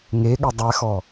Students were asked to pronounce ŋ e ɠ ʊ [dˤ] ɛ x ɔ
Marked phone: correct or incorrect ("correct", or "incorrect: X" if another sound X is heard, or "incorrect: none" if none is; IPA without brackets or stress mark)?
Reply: correct